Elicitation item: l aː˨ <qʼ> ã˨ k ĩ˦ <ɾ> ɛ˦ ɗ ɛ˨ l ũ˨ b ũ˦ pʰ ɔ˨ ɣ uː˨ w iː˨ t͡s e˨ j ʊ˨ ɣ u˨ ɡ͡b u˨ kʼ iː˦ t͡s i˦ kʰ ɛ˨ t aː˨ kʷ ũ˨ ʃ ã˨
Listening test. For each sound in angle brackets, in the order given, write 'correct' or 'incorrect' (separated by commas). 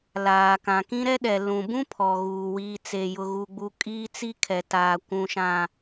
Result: incorrect, correct